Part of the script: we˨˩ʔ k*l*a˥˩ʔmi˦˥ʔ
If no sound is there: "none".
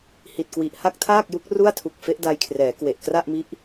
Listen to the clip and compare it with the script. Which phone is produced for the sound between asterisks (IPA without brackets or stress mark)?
r